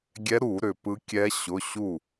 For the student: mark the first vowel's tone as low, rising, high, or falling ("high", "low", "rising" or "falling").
rising